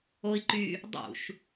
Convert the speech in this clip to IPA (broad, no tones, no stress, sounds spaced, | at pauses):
o i̯ ǃ y | dˤ ṵ ʃ